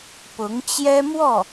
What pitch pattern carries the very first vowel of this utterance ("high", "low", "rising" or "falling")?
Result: rising